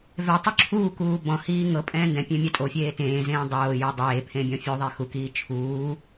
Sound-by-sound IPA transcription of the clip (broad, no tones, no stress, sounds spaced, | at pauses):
v ɛ tˤ u ǁʰ uː k uː b ɔ̃ h iː ŋ ɤ pʼ ɛ̃ː n d ɛ̃ pʲ ẽ mʲ a tʼ o fʲ eː t ẽː z ẽː dˤ oː j o dˤ eː pʰ ẽ bʲ ɔ̃ fʲ o ðˤ e x u k iː t͡ʃʰ uː